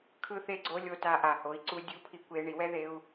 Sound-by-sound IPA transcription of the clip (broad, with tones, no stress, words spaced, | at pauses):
kʰɯ˧θe˧ɡ͡ǀo˧ lʲo˧ta˧ ʔa˩ho˩˧i̯ǀu˧ dʲu˧˥pʰi˧kʷe˧ ɳi˩˧wɛ˥ ðe˧u̯